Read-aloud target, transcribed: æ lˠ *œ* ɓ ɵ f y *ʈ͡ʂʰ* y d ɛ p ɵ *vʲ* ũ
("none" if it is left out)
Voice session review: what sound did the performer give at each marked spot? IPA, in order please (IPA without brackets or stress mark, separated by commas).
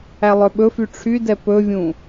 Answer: œ, ʈ͡ʂʰ, vʲ